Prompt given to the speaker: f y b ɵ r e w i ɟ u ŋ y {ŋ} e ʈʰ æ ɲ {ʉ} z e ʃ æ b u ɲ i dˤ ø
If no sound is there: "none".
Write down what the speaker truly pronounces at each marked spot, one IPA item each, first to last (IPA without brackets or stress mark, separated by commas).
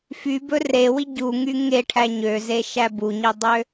ŋ, ø